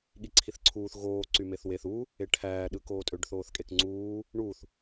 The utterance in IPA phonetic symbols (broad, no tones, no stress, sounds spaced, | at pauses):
ɠ i ǀʰ i θ ǀʰ uː θ ɣ oː ǀ y m e θ w e θ u | e ʈʰ æː ɗ ɯː k oː tʼ ø ɖ θ oː θ kʼ e k ŋ͡ǀ uː | ɳ u θ